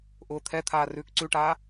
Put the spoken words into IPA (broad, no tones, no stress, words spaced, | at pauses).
ʔʊːt̪ʰɛt̪ʰaː rʉːkǀʉʈaː